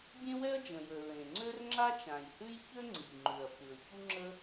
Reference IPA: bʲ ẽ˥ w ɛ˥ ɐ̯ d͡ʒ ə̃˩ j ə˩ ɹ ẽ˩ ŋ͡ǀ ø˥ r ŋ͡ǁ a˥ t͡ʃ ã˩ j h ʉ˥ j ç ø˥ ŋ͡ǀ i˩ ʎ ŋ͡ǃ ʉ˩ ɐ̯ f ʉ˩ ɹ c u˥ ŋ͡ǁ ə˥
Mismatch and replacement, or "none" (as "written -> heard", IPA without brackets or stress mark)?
none